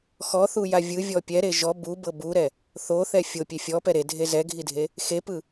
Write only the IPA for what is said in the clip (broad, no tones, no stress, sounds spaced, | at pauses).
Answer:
x ɔ θ u j a vʲ ɯ vʲ ɔ pʲ ɛ ɾ e ʒ ɔ b u b ɤ b u ɾ ɛ | θ o θ ɛ fʲ o pʲ e fʲ ɔ p ɛ ɾ e dʱ e z ɛ ɡʱ i dʱ e | x e p ɯ